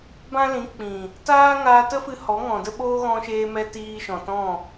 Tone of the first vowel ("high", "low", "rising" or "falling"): high